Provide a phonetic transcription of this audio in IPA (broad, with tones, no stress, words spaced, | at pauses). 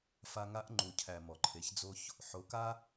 fa˧ŋa˧˥ʔ ŋ͡ǃu˩cʰæ˩ mɔ˩ǃʰe˩˧çd͡zo˧ç | ħo˩˧ka˧